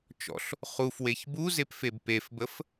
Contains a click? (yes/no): no